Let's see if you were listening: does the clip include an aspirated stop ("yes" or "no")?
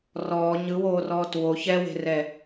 no